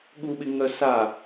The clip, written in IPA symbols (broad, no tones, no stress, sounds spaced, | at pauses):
ɠ u ɓ ɪ ŋ œ s a